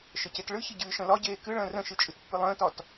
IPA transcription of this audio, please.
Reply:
ʃ ə c e t ɭ ɨ ç ə ɟ ɨː ʃ ə̃ l ɒ ɟ eː k ɨ ɭ ə̃ː r ə̃ ʃ ɨ t͡ʃʼ ɨ t pː ɨ lˠ ə̃ː t ɒ t

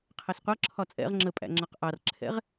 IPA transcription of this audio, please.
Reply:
qʰ ɛ s qʷ ʌ ǁʰ ɒ t͡sʼ ɛ̰ ʁ ŋ͡ǁ ə pʼ æ̰ ŋ͡ǁ ʌ q ʔ ɑ r ǁʰ ɛ̰ ʁ

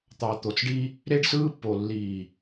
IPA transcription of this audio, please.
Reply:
t̪ ɑ˨ t̪ o˨ t͡s ɖ i˦ | ɾ e˦ ɖ s ɯː˦ pː o˨ lː iː˨

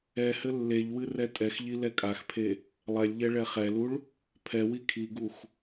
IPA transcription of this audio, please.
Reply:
ɛ h ɘ lː e ʎ w ɨ r ɛ tʼ ɛ x ʎ i l ɛ kʼ a x pʰ e | lˠ ɛ lʲ ʎ ɛ ɭ ɛ χ ɛ l u ɭ | pʰ ɛ w i kʰ i ɡ u x

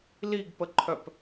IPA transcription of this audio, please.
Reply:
l i ɡ p ə ǃʰ œ p

